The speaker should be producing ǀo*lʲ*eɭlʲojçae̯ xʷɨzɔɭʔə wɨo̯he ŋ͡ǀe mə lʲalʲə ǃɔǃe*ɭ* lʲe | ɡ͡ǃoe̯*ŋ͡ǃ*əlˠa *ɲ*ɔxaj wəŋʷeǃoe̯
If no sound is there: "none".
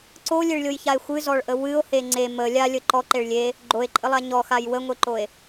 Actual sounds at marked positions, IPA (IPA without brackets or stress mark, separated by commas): lʲ, ɭ, ǃʼ, ɲ